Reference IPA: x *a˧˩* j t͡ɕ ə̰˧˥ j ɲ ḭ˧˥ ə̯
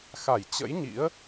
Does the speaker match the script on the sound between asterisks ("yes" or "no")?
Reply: yes